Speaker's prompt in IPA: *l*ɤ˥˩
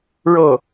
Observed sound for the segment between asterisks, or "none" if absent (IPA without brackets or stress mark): ɻ